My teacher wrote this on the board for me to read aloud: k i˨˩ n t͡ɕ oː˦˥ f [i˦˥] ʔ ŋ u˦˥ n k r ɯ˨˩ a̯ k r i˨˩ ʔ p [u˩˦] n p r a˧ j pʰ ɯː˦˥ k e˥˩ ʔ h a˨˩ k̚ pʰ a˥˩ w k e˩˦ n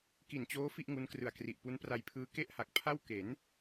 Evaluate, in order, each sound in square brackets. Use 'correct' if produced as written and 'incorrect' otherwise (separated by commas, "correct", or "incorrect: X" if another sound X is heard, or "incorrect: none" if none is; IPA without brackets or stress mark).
incorrect: i˥˩, incorrect: u˦˥